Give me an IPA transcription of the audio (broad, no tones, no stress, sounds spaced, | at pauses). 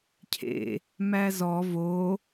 cʰ ḛ | m æ z ɔ v o